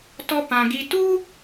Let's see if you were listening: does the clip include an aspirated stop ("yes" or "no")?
no